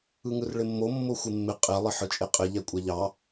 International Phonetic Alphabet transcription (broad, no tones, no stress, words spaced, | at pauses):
ɯŋɯrɭɪmːo mːoxʷɪmːɪ qʼe lˠɪħɯt͡ʃʼeqʼɪ ʎɛkʷʼɛʎɑ